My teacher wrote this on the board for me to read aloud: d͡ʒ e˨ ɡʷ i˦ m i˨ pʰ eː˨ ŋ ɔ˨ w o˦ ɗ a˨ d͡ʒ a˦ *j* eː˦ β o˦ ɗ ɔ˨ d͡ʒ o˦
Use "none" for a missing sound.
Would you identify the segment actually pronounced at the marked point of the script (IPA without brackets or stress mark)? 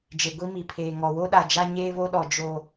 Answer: ɲ